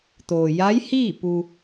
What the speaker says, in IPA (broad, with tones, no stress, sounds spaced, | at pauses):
t̪ oː˩ j a˧˥ j h iː˥˨ p u˧